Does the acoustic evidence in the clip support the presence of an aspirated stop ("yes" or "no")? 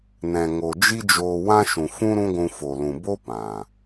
no